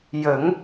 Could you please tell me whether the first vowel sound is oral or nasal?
oral